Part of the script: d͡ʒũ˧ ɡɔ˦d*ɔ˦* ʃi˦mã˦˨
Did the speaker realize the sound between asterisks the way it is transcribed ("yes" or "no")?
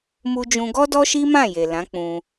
yes